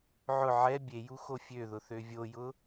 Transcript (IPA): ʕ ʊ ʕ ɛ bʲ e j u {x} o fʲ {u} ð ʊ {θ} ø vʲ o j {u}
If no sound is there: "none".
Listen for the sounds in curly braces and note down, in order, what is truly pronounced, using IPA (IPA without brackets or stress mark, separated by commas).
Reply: x, ø, θ, ʊ